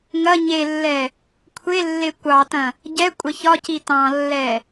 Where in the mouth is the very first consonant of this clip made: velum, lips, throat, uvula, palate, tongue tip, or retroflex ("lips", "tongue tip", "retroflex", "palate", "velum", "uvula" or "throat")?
velum